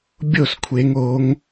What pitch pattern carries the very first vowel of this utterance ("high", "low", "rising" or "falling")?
falling